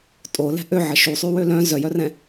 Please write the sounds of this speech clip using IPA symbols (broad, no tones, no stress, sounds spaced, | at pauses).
tʼ o l ɛ̤ ʔ ø ʕ ə ʃ u sˤ y w ø l œ̃ z œ j œ r ɛ̃